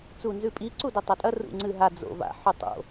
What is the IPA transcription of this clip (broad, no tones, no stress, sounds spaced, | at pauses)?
t͡s u n z ʉ pʼ i ǀ u d ɵ tˤ a tʼ ɐ r ṵ ŋ͡ǀ ɨ ɦ a d͡z o̰ v a̰ ħ u tˤ o̰